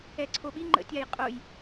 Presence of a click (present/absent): present